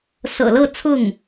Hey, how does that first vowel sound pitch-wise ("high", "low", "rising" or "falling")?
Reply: low